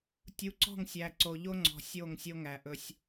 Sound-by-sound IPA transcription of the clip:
tʲu˨˦ǀɔ̤˦˨ŋsʲæ˨ ǀo˨ʎo˦ŋ͡ǀɔ̤˨ sʲo˦˨ŋsʲo˦ ŋæ˨ʔɵ˦sʲ

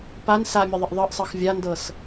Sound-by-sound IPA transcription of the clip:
pan samʲəðˤəʔ ðˤɤʔsˤɤx vʲandɤs

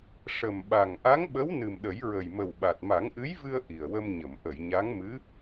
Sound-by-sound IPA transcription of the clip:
ʂə˨˩mɓa˨˩ŋ ʔa˧˥ŋɓə˧˥w nɨ˨˩mɗə˨˩˦jɹə˨˩j mə˨˩wɓa˨˩t̚ ma˨˩˦ŋʔɨ˧˥jvɨ˧ə̯ ʔi˨˩ə̯wə˧mɲə˨˩˨m ʔə˨˩˨j ɲa˧˥ŋmɨ˧˥

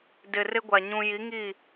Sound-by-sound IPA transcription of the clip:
dɪ˨ rɪ˦ɡʷa˨ ɲũ˨ji˨˦ ŋi˦˨

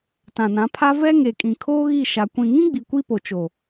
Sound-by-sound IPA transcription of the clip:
tã˨nã˨˦pʰa˦ vɛ˦ŋe˨kʼĩ˨ kʰoː˦ɣi˦˨ʃa˨ kʷĩ˨ŋĩ˦ɡ͡bi˨ kʷi˦po˨ t͡ʃo˨

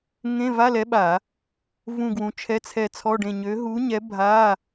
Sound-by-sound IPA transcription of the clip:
ŋẽ˧˥˧va˧˥˧lɛ˨˥ɓa˧˩˧ | vũ˦˨ɡwũ˨˥t͡ʃʰɛ˧˥˧t͡sʰɛ˦˨ t͡sʰɔ˧˥˧ɖẽ˦˨ ɲø˨˥ ɦu˨˥ɲɛ˨˥ bʱa˧˥˧

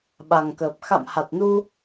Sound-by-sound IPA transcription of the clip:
ɓa˨˩ŋkəː˨˩p̚ xa̰˧˨mha˨˩t̚nu˧

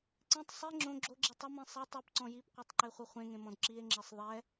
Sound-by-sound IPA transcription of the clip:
ǀẽtˤ sˤi ŋ͡ǁõ ɡ͡ǁoɡ͡ǁi tˤʌmĩ sˤe tˤɛpǀɔ̃ jipqʷetˤǃeχʷʌ χʷẽŋẽmɔ̃d ǁie̯ŋ͡ǁesˤ ðˤɛ

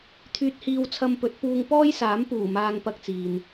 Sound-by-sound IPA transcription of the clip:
t̪ʰyː˧t̚hiː˧w t͡sʰɐ˧mpɵ˨˥t̚puː˧ŋ pɔː˥jsaː˨˥mpuː˨˩ maː˧ŋpɐ˧k̚t͡siː˨n

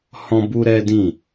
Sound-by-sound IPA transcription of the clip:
hɔ̃˦bu˦ɾɛ˦dĩ˦˨

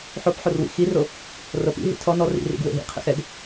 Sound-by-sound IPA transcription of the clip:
ħopħorwḭ xiro | rɤpḭ ɦḭtʰɔ nɔ rḭrḭɡ wḛɦḭqʰḛx ɛɡ

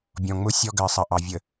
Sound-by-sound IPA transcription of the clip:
bʲɔ̃˨ŋ͡mʊ˦ sʲɔ˦ɡɜ˨sˤɐ˨ʔɑ˨ vʲə˨

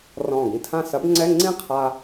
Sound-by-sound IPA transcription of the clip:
rɔ̃ː˧˩ɡĩ˧tʰã˥˧ sɐ˨˥bŋ͡ǀɛ˧˥˧ ŋ͡ǀĩ˥˧qʰa˧

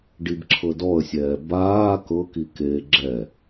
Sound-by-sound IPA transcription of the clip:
ɖibǁʰɤdɔə̯sʲɛː baː kɤki keːɡ͡ǁɛ

